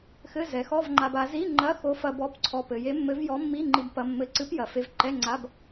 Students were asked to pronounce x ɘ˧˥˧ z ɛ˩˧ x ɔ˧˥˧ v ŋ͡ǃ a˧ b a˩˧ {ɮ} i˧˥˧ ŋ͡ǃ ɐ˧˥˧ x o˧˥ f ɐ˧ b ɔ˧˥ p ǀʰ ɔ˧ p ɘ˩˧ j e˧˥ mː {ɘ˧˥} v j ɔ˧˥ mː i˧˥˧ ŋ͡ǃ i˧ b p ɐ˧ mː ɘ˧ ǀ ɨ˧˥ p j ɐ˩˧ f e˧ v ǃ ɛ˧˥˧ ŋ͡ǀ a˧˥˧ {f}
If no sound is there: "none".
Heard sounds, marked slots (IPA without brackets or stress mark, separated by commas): z, ɘ˧˥, b